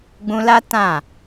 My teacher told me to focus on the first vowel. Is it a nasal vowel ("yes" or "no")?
yes